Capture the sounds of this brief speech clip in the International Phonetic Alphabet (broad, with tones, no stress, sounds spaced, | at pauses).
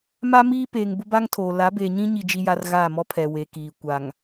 m a˦ m iː˦ p eː˨ ŋ b ʊ˦ b a˦ ŋ tʰ oː˨ l a˨˦ b eː˨ ɲ ĩ˦ ɲ i˦ d͡ʒ i˦ j a˦ r ɣ aː˦˨ m ɔ˦ pʰ ɛ˨ w e˨ k iː˨ kʷ a˨ ŋ